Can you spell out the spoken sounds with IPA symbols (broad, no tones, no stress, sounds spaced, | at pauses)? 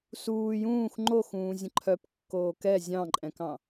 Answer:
s uː j ũː x ŋ͡ǃ o x ũː zʲ ə̃ ǃʰ œ p kː oː k ɛ zʲ ɑ̃ ǃʼ ɛ̃ k ɑ̃